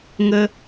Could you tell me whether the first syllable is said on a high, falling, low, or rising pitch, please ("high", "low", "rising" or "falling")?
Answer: high